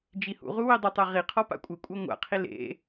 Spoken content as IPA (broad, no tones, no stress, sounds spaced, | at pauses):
d͡ʒ i h ṵ ʁ u w i dˤ ɘ tˤ ɛ ʁ i qʰ ɔ p a̰ kʷʼ ɘ kʷʼ a ŋʷ a̰ qʰ i l ḛ